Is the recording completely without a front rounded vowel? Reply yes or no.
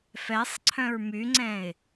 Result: no